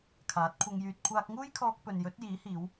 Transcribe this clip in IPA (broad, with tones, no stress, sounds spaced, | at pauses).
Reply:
kʰ aː˨˥ t̚ kʷʰ ɐ˧ ŋ j yː˧ t̚ kʷʰ aː˧ k̚ ŋ uː˥ j kʰ ɔː˧ k̚ p ɵ˨ n j ɵ˨˥ t̚ j iː˨˥ h iː˨˧ w